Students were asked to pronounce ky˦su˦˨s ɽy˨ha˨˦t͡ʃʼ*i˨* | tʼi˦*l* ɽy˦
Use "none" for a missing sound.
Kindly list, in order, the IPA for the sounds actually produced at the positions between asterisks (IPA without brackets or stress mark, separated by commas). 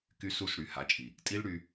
i˨, l